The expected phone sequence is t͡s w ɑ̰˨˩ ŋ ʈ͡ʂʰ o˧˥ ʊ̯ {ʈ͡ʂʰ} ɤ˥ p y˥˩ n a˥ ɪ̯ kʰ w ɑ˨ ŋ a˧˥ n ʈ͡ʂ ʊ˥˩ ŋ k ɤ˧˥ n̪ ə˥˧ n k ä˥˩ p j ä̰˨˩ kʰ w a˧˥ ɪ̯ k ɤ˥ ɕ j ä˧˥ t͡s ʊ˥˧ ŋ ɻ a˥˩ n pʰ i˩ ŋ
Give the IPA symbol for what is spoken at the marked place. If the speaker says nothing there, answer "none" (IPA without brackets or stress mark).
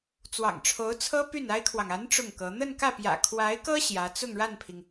t͡sʰ